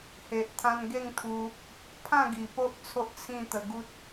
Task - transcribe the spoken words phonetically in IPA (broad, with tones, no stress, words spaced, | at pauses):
he˨ʔ t̪ʰã˧nɡe˥˧ŋt̪ʰu˧ | pʰã˥˧ɡi˨˩po˦ʔ t͡sʰo˦ʔt͡sʰĩ˥˧ t̪ə˧ɡu˦t̚